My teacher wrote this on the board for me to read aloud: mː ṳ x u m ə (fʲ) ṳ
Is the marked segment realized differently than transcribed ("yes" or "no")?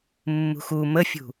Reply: no